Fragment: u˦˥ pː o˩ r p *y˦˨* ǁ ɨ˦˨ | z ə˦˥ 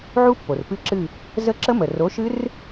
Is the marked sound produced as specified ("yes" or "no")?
no